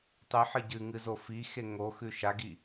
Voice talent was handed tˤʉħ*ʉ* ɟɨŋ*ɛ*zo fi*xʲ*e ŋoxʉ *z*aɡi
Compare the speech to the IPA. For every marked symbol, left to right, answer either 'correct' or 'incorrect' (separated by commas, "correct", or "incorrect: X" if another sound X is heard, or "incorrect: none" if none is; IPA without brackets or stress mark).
incorrect: ɨ, incorrect: ɨ, incorrect: x, incorrect: ʃ